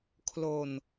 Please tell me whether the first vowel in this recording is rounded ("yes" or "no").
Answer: yes